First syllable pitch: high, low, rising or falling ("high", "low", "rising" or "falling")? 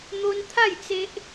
high